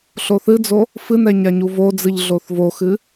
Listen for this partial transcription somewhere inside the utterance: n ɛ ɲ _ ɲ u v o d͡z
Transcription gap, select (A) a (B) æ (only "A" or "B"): A